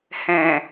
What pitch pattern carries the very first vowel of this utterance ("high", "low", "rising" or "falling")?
low